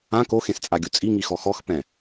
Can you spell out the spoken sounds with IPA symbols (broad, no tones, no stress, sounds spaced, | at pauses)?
ã k o x ẽ s t͡sʼ a ɡʲ u t͡sʼ i ŋ i x ɔ x ɔ x p ɛ̃